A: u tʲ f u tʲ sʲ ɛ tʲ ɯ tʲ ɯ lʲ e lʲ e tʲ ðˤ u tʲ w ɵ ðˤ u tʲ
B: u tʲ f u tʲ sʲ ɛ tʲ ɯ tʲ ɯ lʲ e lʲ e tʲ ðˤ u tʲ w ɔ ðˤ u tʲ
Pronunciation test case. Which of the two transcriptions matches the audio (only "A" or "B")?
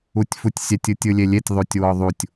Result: B